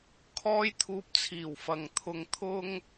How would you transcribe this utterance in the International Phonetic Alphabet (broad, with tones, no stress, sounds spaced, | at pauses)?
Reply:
kʰ ɔː˥ j t̪ʰ uː˧ p̚ t͡sʰ iː˨˩ w f ɐ˨ ŋ t̪ʰ ʊ˧ ŋ t̪ʰ ʊ˥ ŋ